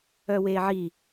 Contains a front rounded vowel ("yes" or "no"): yes